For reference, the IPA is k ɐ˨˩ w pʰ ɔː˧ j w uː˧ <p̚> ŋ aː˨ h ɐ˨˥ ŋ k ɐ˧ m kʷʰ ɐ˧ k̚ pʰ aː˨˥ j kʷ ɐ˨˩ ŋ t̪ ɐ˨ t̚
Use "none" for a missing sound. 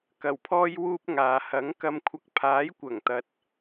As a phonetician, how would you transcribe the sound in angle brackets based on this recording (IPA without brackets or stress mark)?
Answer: p̚